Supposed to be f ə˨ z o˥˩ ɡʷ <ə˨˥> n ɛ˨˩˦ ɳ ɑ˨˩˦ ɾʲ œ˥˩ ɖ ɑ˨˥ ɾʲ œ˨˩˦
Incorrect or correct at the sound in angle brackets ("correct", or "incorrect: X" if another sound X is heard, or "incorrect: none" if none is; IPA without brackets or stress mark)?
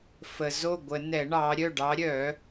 incorrect: ə˨˩˦